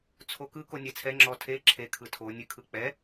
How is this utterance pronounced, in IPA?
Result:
t͡sʰ o k ɯ k o nʲ ɛ t͡sʰ ɛ ŋ͡ǁ ɔ tʰ e ǁʰ e kʰ ɯ tʰ o nʲ ɨ kʰ ɯ k͡p ɛ

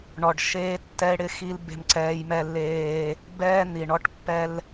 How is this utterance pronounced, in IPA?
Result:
ɳ ɔ˨ ɖ ʃ eː˦ tː ɛ˦ e̯ ɽ ɪ˦ x i˦ l b e̤˦ m ǀ ɛː˦ j m ɛ˦ lː eː˦ | b ɛː˦ n̪ i˨ ɳ ɔ˦ ʈ pː ɛ˦ l

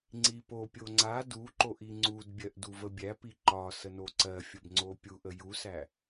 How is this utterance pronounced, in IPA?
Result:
ŋ͡ǀ i p o pʲ o ŋ͡ǀ a d u ǃ o ʔ i ŋ͡ǀ u d bʲ ɜ ʔ d u v ə bʲ æ p i ǃ ɒ s ə n o ǀ ɜ fʲ ə b ŋ͡ǀ o pʲ u ʔ ə j u s æ

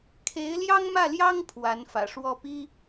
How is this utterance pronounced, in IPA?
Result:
kʰ e˧˥ ɪ̯ l j ɑ˥ ŋ m ä˥˩ l j ɑ˥ ŋ pʰ w a˧˥ n f ä̰˨˩ ʂ w ɔ˥˩ p i˥

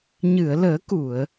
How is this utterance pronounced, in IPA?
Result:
ɲ ɨ˨˩˨ ə̯ l əː˨˩˦ k u˨˩˨ ə̯

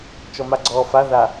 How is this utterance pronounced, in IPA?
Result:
t͡ʃ ɔ m a ɡ͡ǀ ɔː f a ð a

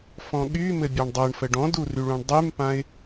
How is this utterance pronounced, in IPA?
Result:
f ɔ̃ ɠ y m ɘ bʲ a ɳ dˤ ɤ ɳ f ə ɖ ɔ̃ d u r y ɭ ũ ɳ dˤ y m p ã ɪ̯

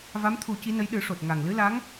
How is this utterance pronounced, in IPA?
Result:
v a˧˥ m t̪ʰ u˨˩˦ c i˧˥ n ə˧˥ j ɗ ɨ˨˩˦ ʂ o˨˩ t̚ ŋ a˨˩ ŋ l ɨ˧˥ l a˧˥ ŋ

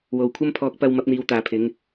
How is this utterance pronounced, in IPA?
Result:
w o˨ w kʷʰ ɐ˥ m pʰ ɔː˧ k̚ p ɐ˧ w m ɐ˨˥ p̚ n̪ iː˨˧ w t̪ aː˨ pʰ ɪ˨˧ ŋ

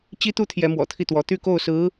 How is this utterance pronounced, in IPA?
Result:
t͡ɕ i˥ t̪ u˥ t̪ʰ j ɛ˧˥ m w ɔ̰˨˩ t̪ʰ i˥˩ t̪ w ɔ˧˥ t̪ y˥˧ k o˥˩ ʊ̯ s ɹ̩˧˥

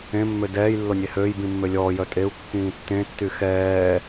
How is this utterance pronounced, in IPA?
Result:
ẽ mː ø d ɛː j lː o nʲ e h øː j b ĩ mː ø lʲ ɔː j œ tʼ e u̯ kː ĩː tː ẽ tː y x ɛː

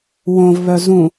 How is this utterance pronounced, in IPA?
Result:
w õ v β œ z ũ

